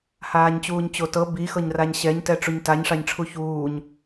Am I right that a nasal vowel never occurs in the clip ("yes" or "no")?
yes